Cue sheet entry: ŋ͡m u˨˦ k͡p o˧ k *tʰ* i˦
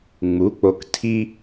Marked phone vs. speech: correct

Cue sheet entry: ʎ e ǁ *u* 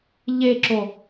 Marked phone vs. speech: incorrect: o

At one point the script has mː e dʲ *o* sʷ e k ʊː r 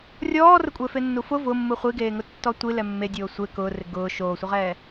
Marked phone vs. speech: incorrect: oː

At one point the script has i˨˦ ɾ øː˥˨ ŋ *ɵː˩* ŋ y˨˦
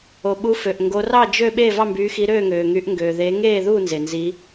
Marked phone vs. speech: incorrect: øː˩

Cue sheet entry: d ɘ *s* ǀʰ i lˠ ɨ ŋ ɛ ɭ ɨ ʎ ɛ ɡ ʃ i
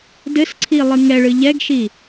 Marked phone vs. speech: correct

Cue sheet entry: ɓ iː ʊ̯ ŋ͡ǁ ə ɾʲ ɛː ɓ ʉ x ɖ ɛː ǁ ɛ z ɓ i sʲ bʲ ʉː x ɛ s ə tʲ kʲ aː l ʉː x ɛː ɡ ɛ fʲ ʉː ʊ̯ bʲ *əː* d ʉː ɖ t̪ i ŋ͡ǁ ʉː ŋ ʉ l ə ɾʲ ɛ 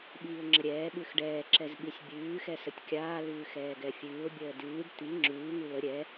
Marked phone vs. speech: correct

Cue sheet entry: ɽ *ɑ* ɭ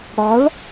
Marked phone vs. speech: correct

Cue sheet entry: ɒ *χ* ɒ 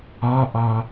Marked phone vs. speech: incorrect: ʔ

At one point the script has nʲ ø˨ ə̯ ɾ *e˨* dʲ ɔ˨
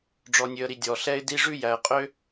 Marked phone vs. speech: incorrect: i˨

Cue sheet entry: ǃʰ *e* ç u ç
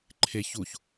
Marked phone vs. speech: correct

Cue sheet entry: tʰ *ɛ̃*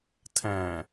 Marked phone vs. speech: correct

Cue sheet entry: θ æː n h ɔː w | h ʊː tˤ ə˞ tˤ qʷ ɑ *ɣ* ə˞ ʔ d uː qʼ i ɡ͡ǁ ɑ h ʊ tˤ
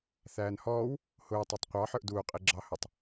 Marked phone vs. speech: incorrect: ħ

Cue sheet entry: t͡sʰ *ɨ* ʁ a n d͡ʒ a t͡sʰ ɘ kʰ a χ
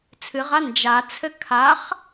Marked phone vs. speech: correct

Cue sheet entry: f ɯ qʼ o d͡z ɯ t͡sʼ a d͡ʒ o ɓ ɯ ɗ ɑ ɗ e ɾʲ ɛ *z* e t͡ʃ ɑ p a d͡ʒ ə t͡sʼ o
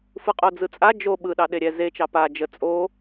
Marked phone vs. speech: correct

